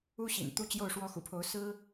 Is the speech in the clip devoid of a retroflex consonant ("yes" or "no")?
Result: no